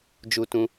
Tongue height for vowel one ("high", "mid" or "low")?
high